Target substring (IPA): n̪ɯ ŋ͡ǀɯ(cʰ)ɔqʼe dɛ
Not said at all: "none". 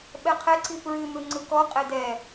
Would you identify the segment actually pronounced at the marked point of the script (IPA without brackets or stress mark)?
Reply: k